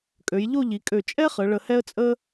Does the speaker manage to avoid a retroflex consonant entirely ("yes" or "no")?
no